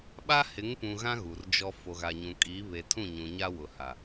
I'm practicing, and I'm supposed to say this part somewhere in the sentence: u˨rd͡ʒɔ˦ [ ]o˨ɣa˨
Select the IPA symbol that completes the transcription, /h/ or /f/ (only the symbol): f